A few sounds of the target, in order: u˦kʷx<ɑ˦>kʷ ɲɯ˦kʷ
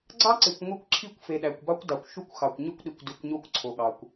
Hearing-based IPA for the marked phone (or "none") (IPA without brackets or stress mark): ɑ˨